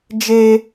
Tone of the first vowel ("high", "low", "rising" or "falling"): high